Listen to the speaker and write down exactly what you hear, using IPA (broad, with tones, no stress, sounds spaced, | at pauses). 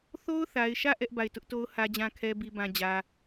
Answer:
θ o˦ ʊ̯ θ a˨ ɪ̯ ʃ ä˦˨ ʔ ɛ˦ ʔ b a˦˨ ɪ̯ t ʊ˦ ʔ t o˦ ʊ̯ h ä˦ d͡ʑ ã˦ kʰ ɛ˦ b i˦ b ã˦ d͡ʑ ä˦